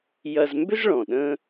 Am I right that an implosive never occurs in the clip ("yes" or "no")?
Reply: no